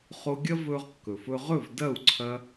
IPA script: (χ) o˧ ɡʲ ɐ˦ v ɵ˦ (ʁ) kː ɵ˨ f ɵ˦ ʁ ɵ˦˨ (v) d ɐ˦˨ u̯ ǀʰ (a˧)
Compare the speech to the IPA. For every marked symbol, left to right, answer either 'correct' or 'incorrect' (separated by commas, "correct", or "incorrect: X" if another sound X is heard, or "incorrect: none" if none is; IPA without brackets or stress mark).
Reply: correct, correct, correct, incorrect: ɐ˧